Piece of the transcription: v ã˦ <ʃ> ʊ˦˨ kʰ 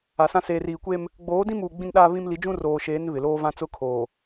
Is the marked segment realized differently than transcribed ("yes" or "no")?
yes